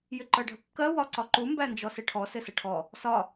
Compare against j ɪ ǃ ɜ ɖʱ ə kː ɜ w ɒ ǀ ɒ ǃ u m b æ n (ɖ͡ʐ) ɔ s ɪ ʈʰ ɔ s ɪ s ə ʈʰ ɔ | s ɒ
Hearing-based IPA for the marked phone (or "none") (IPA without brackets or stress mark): d͡ʒ